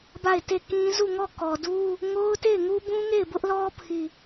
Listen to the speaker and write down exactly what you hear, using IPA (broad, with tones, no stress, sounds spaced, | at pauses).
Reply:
b a˦˨ ɪ̯ t e˦˨ k ĩ˦ z u˦˨ ŋ ɔ˦˨ k ɔ˨ d u˦ | ŋ o˦ ʊ̯ t e˦˨ ɪ̯ ŋ u˦ b ũ˦ ŋ e˦˨ ɪ̯ b ʊ˦ ʔ l ɔ˦ pʰ i˦˨